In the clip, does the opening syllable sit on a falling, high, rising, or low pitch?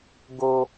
high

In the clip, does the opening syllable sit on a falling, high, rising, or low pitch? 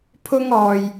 high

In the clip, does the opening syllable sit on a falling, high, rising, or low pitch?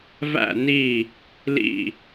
low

